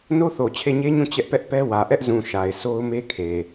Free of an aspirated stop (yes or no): no